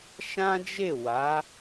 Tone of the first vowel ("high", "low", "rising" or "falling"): high